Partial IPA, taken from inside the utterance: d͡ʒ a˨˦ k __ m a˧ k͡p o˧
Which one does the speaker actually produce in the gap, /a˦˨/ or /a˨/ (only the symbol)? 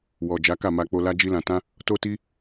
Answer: a˦˨